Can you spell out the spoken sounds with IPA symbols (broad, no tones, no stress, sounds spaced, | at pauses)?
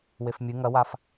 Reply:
w e f mʲ ɨ ŋ ɐ w a f